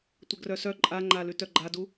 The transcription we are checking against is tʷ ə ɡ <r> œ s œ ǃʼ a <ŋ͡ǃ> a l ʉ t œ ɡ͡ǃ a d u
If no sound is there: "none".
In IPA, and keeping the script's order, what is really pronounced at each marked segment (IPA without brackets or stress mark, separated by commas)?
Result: r, ŋ͡ǃ